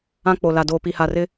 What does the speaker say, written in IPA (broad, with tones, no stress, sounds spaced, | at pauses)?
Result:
ã˦ k͡p o˨ l a˨ d oː˨ p i˨ h a˨ r ɪ˦